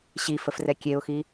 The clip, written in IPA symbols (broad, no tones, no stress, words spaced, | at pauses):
ɕifəfrɛ kʲeʊ̯xi